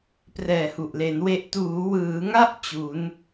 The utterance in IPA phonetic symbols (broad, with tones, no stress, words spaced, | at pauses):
prɛː˨˩hu˨˩ʔle˩˦n we˦˥ʔ tuː˩˦wɯː˩˦ŋa˥˩ʔ t͡ɕu˩˦n